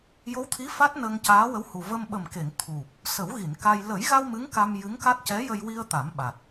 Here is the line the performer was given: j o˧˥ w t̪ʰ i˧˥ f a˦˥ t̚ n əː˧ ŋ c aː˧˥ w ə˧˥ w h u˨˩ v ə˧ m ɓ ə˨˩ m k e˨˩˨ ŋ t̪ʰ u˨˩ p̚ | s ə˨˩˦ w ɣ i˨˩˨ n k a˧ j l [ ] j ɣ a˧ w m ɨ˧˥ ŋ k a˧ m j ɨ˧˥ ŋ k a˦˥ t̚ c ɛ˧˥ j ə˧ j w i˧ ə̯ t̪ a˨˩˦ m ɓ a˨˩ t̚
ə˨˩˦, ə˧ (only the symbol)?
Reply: ə˨˩˦